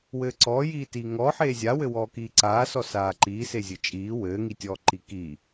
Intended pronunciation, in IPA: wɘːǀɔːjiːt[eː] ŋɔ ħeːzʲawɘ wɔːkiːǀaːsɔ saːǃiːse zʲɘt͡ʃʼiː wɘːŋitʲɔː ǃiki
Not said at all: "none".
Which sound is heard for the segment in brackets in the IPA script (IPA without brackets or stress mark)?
iː